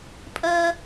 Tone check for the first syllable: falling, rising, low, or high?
high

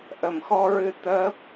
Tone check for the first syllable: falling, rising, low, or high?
low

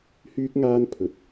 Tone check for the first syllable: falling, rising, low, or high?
high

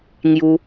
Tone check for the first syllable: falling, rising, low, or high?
high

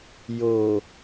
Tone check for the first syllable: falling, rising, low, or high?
low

